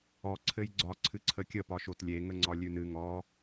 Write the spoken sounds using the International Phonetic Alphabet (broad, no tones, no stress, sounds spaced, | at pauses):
ɔ ǀʰ ɘ j ɡ͡ǀ ɒ ǀʰ ɨ ǀʰ ə kʲ ə p ɒ ʃ o t lʲ e ŋ ə ŋ͡ǀ ɒ lʲ ʉ n ɨ ŋ ɔ